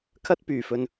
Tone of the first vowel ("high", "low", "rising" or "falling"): high